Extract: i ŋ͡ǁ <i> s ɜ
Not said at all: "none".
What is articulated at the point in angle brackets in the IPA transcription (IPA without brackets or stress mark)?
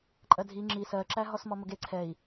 i